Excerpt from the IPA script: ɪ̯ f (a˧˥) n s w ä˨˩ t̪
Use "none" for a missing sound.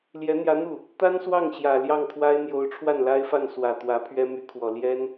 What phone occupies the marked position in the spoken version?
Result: a˥˩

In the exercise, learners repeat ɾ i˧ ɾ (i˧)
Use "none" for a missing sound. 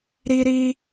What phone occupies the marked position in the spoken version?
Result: i˧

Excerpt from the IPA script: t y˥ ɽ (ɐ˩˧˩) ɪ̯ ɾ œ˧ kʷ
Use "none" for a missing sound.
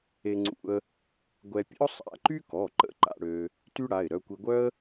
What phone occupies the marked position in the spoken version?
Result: a˩˧˩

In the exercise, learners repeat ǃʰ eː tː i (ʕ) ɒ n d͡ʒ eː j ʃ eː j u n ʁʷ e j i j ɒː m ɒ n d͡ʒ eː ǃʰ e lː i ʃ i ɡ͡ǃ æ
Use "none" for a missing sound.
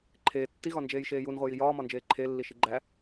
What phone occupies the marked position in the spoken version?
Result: ɣ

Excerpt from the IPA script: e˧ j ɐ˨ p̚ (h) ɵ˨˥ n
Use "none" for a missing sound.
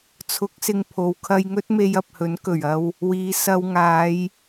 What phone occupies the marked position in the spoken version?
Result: h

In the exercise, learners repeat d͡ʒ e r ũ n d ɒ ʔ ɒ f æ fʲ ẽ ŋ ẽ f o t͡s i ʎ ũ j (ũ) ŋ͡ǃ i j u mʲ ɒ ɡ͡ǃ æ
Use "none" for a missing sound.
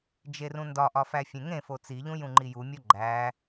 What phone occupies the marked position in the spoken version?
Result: ũ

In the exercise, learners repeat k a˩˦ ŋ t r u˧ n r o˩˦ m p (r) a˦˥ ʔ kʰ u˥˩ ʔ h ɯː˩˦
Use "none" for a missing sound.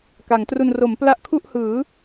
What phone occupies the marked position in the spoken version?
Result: l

